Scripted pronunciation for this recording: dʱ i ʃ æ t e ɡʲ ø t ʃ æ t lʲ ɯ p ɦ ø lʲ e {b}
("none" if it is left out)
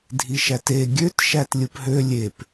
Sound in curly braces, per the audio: p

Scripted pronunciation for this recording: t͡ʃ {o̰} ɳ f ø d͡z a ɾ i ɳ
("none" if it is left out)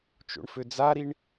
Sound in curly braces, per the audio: o̰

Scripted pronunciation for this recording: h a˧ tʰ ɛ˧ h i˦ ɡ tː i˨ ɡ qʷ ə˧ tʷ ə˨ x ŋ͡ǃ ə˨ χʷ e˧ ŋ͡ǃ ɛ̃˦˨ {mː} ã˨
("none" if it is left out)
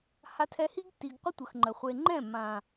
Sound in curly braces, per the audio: mː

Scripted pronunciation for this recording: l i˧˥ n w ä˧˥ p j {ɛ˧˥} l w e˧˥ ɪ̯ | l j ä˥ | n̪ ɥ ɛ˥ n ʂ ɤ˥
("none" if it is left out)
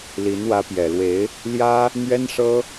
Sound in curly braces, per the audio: ɛ˨˩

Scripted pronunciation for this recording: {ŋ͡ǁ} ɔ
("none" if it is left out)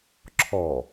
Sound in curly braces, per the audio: ǁʰ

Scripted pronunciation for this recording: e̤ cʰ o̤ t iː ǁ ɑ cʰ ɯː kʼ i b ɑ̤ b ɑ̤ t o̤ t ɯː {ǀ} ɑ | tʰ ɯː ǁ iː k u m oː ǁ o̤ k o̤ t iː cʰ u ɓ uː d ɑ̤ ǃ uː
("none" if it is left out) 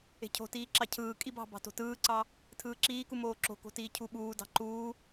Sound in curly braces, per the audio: ǀ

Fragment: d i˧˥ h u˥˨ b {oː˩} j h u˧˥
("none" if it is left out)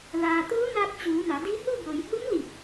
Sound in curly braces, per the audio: o˩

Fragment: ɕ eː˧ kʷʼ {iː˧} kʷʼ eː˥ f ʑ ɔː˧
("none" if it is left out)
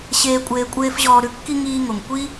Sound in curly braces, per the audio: eː˧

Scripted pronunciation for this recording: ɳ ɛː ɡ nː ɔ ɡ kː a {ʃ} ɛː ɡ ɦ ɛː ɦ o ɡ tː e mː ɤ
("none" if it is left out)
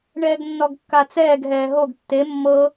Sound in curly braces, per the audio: t͡s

